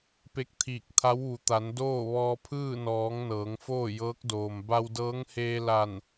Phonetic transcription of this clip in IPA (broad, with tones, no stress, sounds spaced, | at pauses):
p e˧ k̚ t̪ʰ iː˧˩ k̚ t̪ʰ a˧˥ w ʋ u˩˧ t̪ a˩˧ n d oː˥˨ ʋ ɔː˧ pʰ ɯː˥˨ n ɔː˩˧ ŋ n ɤː˩˧ ŋ f oː˥˨ j ɤː˧˥ k̚ d oː˩ m b a˧ w d ɤː˧˥ ŋ h eː˧ l a˧˩ n